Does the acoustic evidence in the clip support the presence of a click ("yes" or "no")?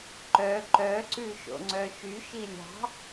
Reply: yes